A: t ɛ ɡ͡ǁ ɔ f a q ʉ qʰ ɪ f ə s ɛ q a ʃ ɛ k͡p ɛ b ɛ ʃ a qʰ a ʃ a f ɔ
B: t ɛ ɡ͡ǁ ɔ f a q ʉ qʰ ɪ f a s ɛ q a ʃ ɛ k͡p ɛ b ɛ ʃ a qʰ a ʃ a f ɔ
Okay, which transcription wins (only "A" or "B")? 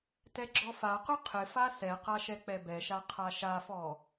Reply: B